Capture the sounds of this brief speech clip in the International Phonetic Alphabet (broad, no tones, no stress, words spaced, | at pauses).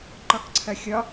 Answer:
ǃɒkǀʰɐxʲɒ